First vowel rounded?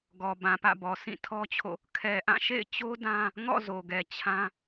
yes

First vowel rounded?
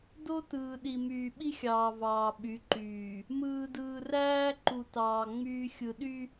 yes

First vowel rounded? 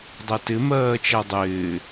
no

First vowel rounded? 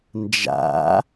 no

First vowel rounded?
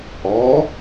yes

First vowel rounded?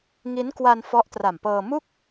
no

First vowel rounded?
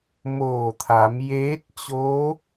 yes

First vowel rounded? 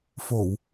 yes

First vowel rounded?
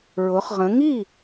yes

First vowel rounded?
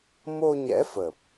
yes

